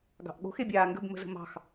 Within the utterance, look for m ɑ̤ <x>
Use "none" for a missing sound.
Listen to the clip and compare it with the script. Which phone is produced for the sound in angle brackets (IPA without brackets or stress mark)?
x